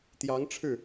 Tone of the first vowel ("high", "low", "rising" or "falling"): rising